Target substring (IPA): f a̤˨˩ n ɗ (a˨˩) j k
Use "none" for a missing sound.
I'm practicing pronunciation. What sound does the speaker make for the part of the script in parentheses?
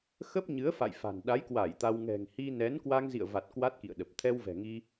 a˨˦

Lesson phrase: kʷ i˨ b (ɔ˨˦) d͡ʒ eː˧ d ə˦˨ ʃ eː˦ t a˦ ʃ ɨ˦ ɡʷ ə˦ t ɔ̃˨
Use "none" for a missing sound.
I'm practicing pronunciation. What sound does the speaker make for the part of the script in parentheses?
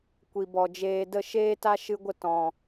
ɔ˨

